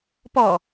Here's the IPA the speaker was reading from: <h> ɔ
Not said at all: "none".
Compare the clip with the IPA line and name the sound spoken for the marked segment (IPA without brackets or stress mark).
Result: p